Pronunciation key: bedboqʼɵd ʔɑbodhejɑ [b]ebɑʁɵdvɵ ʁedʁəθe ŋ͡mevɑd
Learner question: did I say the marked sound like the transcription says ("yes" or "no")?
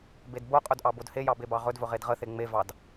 yes